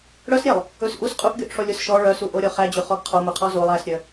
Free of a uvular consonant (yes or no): no